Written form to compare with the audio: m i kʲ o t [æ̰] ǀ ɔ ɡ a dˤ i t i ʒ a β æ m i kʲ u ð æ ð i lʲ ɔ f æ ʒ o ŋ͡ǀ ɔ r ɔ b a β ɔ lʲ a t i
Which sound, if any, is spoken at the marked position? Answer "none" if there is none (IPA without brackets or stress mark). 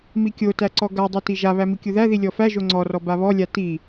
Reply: æ